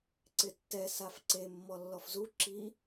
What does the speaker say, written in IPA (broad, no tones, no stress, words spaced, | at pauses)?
ǀɪtːɛ safǀe mːɔlːɔfzu ǁi